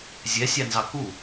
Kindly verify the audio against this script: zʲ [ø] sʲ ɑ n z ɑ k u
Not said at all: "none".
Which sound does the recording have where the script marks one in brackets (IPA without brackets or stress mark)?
ɛ